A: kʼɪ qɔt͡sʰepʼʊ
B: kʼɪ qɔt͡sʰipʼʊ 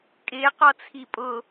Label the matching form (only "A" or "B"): B